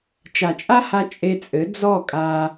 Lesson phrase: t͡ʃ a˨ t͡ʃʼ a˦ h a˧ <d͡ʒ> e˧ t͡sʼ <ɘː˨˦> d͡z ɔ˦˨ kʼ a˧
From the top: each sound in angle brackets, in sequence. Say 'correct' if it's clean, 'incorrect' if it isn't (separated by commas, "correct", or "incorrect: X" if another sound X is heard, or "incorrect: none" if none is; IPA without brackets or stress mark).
incorrect: t͡ʃʼ, incorrect: ɘ˨˦